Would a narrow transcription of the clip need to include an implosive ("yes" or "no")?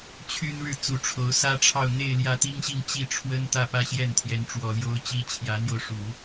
no